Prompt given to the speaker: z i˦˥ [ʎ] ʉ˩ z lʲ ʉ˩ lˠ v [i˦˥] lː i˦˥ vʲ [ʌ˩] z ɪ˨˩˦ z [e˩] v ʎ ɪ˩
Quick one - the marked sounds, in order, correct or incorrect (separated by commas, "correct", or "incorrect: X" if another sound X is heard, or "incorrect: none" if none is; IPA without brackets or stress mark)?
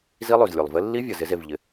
incorrect: lˠ, incorrect: ɪ˦˥, correct, correct